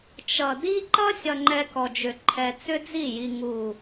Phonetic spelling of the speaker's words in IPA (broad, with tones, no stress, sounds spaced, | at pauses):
t͡ʃ ʌ˨ d i˦ ǃ ʌ˦ sʲ ʌ˧ ŋ͡ǃ ɛ˧ k ɔ˨ d͡ʒ ʏ˨ ǃʰ ɛ˧ t͡s ʏ˦ d͡z i˦˨ j i˨ ŋ u˨